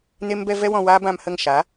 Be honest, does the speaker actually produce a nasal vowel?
yes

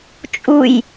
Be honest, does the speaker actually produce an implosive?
no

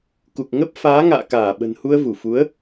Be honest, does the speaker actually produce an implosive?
yes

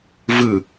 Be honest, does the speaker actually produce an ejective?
no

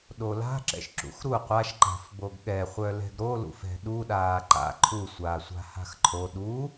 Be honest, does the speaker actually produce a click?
yes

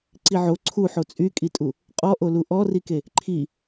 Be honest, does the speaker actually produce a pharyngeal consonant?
yes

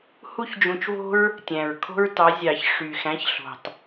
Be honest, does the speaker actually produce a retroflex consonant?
yes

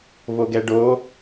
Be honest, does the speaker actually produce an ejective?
no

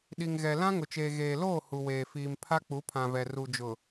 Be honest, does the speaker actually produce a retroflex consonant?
no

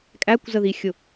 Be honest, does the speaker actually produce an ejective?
yes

